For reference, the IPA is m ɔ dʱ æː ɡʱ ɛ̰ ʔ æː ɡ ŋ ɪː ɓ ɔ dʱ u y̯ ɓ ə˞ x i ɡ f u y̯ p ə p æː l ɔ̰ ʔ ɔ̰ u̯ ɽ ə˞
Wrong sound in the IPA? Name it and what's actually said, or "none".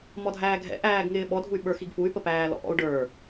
ɽ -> ɖ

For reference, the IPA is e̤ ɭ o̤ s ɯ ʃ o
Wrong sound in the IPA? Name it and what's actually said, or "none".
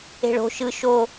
s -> ʃ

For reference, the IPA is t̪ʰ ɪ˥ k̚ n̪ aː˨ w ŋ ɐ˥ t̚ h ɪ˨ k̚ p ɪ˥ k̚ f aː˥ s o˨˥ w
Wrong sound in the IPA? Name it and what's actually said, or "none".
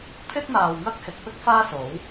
t̚ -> k̚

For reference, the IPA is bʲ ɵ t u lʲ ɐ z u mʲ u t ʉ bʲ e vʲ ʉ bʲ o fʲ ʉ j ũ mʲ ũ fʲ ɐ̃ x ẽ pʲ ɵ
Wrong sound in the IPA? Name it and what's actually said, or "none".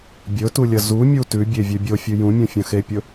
ẽ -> e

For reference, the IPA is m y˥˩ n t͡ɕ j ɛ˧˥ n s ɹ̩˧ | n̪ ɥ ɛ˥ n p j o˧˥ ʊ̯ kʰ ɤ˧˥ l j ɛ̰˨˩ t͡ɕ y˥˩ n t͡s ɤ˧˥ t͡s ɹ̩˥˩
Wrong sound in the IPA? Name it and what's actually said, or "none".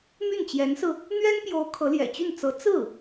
none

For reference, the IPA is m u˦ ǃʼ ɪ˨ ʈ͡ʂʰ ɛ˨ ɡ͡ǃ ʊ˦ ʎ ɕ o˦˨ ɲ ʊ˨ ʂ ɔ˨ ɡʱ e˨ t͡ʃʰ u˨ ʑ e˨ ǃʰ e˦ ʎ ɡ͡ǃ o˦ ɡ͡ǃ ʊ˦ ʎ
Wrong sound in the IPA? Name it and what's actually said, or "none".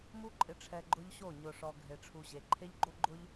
t͡ʃʰ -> ʈ͡ʂʰ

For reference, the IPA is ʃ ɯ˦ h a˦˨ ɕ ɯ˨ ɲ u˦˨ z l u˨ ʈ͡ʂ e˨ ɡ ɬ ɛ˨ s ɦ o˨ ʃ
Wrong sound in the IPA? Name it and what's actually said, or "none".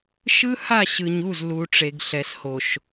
ɦ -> h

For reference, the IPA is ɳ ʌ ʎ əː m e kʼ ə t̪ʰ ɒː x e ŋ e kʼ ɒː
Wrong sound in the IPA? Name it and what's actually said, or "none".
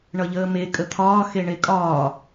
ŋ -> ɳ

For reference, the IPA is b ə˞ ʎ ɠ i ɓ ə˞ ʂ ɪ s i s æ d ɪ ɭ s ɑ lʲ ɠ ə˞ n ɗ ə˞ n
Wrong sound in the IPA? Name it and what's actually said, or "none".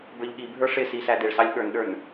ɓ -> bʱ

